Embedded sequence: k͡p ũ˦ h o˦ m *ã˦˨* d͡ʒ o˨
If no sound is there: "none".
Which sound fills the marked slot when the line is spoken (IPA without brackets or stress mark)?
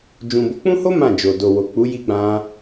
ã˦˨